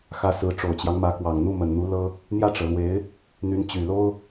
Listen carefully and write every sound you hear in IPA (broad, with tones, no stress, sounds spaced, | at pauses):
x ä˧˥ s ɹ̩˧˥ ʈ͡ʂ o˨˩ ʊ̯ t͡ɕ j ɑ˦ ŋ m ä˧˥ k w ɑ˨˩ ŋ n̪ u˥˩ m ə˨˩ n n̪ u˧˥ l ɤ˥ | n̪ j ä˥˩ ʈ͡ʂ ɤ˩ l w e˧˥ ɪ̯ | n̪ y˧˥ n t͡ɕ y˨˩ l o˥ ʊ̯